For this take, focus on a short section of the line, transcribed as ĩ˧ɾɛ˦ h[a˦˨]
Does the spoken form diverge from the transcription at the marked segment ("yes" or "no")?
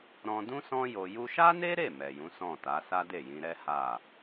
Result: no